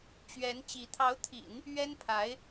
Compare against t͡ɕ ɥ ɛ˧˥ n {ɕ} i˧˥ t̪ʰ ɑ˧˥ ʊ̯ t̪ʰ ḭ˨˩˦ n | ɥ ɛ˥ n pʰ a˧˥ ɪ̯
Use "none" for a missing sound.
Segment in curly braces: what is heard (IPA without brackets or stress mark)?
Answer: t͡ɕ